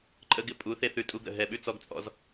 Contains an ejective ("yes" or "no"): yes